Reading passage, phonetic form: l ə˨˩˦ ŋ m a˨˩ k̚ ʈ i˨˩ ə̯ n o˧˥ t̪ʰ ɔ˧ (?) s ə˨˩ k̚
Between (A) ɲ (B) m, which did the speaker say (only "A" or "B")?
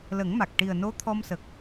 B